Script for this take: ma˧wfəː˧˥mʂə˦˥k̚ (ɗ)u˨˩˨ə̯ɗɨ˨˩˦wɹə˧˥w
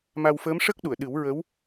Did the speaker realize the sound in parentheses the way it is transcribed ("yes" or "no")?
yes